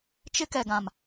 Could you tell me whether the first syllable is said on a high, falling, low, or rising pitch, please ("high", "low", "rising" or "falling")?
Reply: high